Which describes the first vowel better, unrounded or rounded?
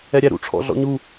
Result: unrounded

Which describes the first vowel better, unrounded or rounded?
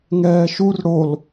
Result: unrounded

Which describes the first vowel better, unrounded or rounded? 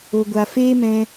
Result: rounded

